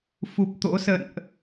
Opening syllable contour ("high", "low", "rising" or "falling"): low